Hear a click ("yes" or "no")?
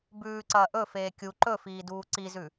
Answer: yes